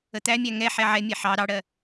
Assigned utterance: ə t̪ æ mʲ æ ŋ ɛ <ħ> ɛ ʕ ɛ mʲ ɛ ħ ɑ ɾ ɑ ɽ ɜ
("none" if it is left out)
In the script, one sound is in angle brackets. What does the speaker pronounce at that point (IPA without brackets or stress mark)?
ħ